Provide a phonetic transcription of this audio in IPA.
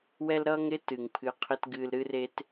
wɛ˥l ɾʌː˥ŋɾɪ˥ tɨ˩ŋpʰɨ˧qʰɪ˥t ɡɨː˧lɾɨ˥re˥t

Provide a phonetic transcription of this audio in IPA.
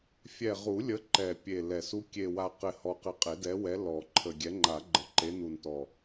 fʲɛ˨˩ʁu˨˩˦lʲə˨˦ ǃɛ˨˩pʲe˨˩ lɛ˨˩s u˨˦kʲe˨˩wa˨˩ qɪ˨˩hɔ˨˩qɪ˨˩ qʼe˨˩˦dɛ˨˦wɛ˨˦ lɔ˨˩˦ǃʰə˨˩ ɡʲɛ˨˦ŋ͡ǃa˨˩˦ɡ͡ǃə˨˩˦ ǃe˨˦nu˨˩ntɔ˨˩

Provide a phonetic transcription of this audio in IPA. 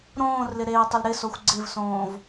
ɾõːrlɪ ɾeːtˤʊlɾɪsoxʷ ɡ͡ǀɪvsõːv

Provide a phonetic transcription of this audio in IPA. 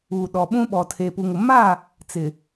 uː˨ɗɔ˨ɓũ˦ ɓɔ˨tʰe˨pu˨ŋʊ˨ ma˦˨ | t͡sɪ˨

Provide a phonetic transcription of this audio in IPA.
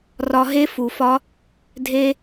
rɒ˧ɦe˦fu˨fɒ˦ | dʱe˦

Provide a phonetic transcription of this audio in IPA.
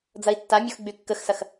d͡zɐi̯tːamʲox ɡ͡bykːəxsɐx

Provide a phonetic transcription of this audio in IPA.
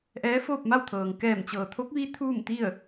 ʔɛː˧˥foː˥˨p̚ma˥˨wt̪ʰɤː˩ŋ kɛː˧˩mt͡ɕɤː˩t̪ʰo˧˥k̚ ʋi˧˥ t̪ʰuː˥˨mt̪i˥˨ə̯

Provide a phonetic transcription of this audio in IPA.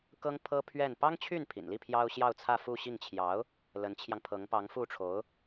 kɤ˥ŋ pʰɤ˥ pʰɥɛ˥˩n pɑ˥ŋt͡ɕʰy˥˩npʰḭ˨˩nli˥˩ pʰjɑ˥ʊ̯ ɕjɑ˥˧ʊ̯t͡sʰä˥˧fu˥˧ ɕi˥˩ŋt͡ɕʰjɑ˧˥ʊ̯ | lə˧˥nt͡ɕʰjɑ˧ŋpʰɤ˧˥ŋ pɑ˧˥ŋfu˥˩ʈ͡ʂʰo˧˥ʊ̯

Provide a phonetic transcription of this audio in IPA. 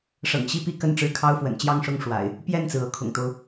ʂɤ̰˨˩ŋɕi˥˨pi˥˨ kə˥˨nʈ͡ʂɻ̩˦kʰɑ˦ʊ̯fwə̰˨˩n t͡ɕjɑ˥˨ŋʂʊ˥˨ŋ ʂwa̰˨˩ɪ̯ | pjɛ˥˨nt͡sɹ̩˩ ɤ˨˦kʰʊ̰˨˩ŋt̪o˦ʊ̯

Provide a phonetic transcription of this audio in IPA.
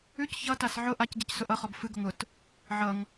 ʉc çʌtas ʕʊ ʔacɟɛcsʊ ʔʌχɔb fɨɡʊŋ ʊt | ʕʌŋ

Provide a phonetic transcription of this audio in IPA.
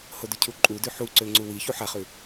hodʉcʰu ǃʼudʉ ħuǀø ŋ͡ǀuwi çuħaχʉ

